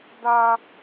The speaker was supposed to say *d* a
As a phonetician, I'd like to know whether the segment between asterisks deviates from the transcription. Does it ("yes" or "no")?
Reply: no